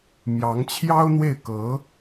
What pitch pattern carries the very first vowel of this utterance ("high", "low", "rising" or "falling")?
rising